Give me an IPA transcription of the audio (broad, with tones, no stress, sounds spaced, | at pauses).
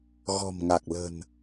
ɣ ɔ̤˨˩ m ŋ a˨˩ k̚ l ə̤˨˩ n